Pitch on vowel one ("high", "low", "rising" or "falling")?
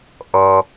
low